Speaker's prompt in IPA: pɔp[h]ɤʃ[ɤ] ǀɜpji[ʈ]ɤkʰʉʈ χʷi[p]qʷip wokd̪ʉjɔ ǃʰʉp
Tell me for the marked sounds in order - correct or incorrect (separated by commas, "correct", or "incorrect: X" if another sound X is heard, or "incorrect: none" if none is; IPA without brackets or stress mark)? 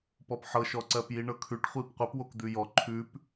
incorrect: ħ, incorrect: ɔ, incorrect: ɳ, correct